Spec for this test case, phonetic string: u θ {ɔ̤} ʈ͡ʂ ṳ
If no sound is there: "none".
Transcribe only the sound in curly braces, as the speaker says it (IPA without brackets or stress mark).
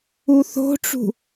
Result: o̤